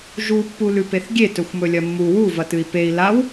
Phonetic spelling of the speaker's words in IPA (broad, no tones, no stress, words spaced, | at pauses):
ʒupːu lʉpeθɡʲe tɵxʷmɵlʲɐmːu wuvɐtɨi̯ pei̯ law